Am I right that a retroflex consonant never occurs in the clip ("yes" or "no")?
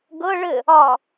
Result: no